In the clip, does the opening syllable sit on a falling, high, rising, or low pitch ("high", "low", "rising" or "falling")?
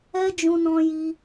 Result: high